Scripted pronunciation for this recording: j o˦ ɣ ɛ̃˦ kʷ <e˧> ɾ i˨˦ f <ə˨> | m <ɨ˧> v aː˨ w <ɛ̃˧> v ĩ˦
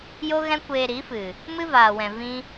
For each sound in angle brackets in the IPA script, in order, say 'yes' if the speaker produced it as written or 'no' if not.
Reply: no, no, no, no

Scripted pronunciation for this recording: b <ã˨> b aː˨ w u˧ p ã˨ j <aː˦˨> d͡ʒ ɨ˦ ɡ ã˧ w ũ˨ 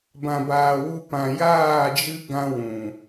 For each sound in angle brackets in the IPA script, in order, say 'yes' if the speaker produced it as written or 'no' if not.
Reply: yes, yes

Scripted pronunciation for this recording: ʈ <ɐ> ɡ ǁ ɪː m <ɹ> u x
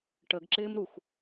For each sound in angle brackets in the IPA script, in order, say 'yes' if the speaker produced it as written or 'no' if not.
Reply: no, no

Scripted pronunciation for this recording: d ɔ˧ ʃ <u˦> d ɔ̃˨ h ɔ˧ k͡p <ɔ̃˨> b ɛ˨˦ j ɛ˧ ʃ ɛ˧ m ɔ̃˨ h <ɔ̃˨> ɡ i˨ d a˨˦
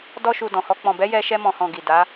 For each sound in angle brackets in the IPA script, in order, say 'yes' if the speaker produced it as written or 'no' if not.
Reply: no, yes, yes

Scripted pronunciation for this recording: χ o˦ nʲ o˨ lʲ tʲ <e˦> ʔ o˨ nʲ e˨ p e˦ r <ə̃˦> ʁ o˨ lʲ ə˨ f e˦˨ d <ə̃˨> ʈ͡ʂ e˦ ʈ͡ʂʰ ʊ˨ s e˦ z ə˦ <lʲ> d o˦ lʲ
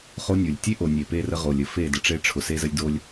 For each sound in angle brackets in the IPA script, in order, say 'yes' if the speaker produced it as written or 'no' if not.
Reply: yes, no, no, yes

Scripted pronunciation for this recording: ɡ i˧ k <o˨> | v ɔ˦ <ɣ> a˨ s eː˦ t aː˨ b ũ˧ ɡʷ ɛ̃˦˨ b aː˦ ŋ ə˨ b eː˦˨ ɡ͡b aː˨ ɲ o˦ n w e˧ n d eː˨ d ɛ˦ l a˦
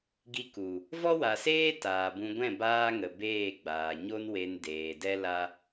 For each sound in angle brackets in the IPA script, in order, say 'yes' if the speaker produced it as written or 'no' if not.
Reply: no, no

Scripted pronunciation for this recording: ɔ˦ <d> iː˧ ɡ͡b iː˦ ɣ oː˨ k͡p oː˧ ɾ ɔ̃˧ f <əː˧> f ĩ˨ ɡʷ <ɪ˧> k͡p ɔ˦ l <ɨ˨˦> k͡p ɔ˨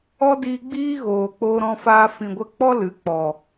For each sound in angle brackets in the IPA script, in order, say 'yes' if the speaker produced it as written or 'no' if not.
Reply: yes, no, no, yes

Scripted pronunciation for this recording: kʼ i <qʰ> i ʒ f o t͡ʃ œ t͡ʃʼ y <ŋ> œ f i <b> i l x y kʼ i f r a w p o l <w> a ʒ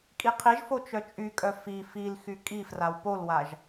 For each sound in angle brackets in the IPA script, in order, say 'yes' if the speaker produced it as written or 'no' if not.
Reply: yes, no, no, yes

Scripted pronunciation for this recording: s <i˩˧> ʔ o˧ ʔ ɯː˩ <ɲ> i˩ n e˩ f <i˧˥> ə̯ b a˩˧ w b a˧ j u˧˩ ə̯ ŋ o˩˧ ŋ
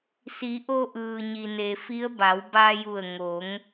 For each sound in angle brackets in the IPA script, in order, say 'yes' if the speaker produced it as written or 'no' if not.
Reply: yes, yes, yes

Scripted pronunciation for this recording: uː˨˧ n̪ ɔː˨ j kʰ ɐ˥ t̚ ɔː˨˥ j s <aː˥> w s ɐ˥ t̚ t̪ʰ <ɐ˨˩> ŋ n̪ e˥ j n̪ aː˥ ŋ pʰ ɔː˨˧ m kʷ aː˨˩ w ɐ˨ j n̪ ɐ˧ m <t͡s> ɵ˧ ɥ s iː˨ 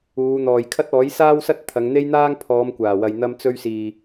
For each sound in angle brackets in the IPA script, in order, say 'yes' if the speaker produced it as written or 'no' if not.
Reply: yes, no, yes

